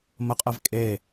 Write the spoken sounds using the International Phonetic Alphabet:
məqʼɛv kʼe

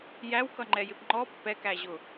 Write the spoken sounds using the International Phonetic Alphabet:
jæwkʌŋ͡ǃɛjɪp ŋ͡ǃɔ pːɛkæʑʊ

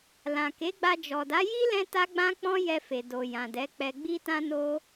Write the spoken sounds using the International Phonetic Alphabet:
lã˨ke˨˦ɡ͡ba˧ d͡ʒɔ˨da˨˦ji˦ lɛ̃˦ta˦ɡ͡bã˦k͡pɔ̃˦ jɛ˧fe˨ do˨jã˨dɛ˨˦k͡pɛ˧ ɡ͡bi˦tã˦no˦

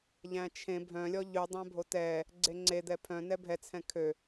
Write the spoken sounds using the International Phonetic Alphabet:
ʎæ̃t͡ʃʰẽ bʱœ̃lʲɔ ʎʉ dˤæ̃bʱotɛ | ɡ͡ǀeŋ͡ǀe d̪ɛpʰœ̃nɛ bʱɛt͡sʰɛ̃ kʰø

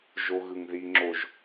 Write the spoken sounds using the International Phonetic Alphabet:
ʒoɣɯŋðiŋ͡ǁoʒ

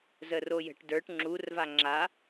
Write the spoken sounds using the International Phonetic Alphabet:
zərojə̤ʈ də˞ʈ ŋ͡ǁurva ŋ͡ǁa

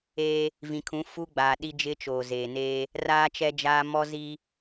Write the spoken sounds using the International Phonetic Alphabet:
eː˦ | vĩ˨kʰũ˨˦ fu˦ɡ͡baː˨ ɗi˦d͡ʒɪ˦ t͡ʃoː˨zeː˨neː˦ | raː˦t͡ʃɛ˦d͡ʒaː˦ mɔ˦zi˦

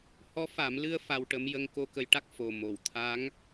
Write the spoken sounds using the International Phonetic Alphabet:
hɔ˧˥fa˨˩˦m lɨ˧ə̯ fa˧wʈə˧˥mjə˧ŋ ko˧ kə˧˥jʈa˦˥k̚ fo˨˩ mo˨˩˨wt̪ʰa˧˥ŋ

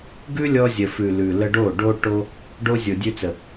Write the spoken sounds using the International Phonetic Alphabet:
ɡʉ˦lʲɔ˧zʲə˨fʉ˨ lʉ˨lə˧ɖo˦˨ ɖo˧ ʈo˧ | ɖo˧ zʲo˨dʲʉ˧t͡sə˨

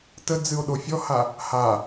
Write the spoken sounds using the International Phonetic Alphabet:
tə d͡zɨo̯ɗofʲɔha | ha

